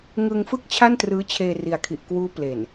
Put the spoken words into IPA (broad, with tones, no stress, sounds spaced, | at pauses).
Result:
ŋ ɯ˧ ŋ f ɯ˥˩ k̚ t͡ɕʰ a˥˩ n t r ɯː˦˥ t͡ɕʰ eː˧ r i˨˩ a̯ kʰ i˨˩ ʔ k w uː˦˥ p l e˨˩ n